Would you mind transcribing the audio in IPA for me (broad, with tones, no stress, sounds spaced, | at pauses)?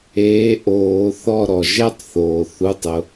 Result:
eː˨˥ ʔ oː˨˩˦ θ ɔ˦˨ ɾ ɔ˩ ʒ ɛ˥ tˤ θ oː˩ θ u˩˧˩ tˤ ʊ˩